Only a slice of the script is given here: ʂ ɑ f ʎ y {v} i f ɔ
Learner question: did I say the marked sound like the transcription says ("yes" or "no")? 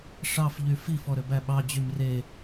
no